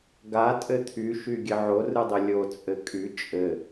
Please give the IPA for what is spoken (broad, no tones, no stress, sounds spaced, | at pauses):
ɡ a tʼ ɘ t̪ʰ y ʃ y ɡʲ ɘ ʕ o r ɯ dˤ ɘ lʲ o t͡sʼ ɘ kʼ y t͡ʃʼ ɘ